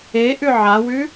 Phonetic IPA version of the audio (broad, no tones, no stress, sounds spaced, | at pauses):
e ʔ ʉ ʕ a w ʉ